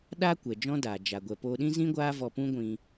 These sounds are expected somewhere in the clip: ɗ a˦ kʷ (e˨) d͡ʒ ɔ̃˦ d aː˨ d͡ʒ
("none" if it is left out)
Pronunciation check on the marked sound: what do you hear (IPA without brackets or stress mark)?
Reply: ɛ˨